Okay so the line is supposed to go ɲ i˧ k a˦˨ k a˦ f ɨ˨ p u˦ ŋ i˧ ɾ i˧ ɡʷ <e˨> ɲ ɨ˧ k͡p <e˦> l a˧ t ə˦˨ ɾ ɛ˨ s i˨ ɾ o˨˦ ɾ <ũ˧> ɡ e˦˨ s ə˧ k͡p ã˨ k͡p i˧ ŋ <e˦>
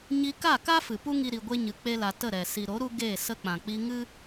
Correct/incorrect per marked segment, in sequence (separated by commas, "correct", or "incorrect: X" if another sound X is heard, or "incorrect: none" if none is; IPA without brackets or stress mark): incorrect: e˦, correct, incorrect: u˧, incorrect: ɨ˦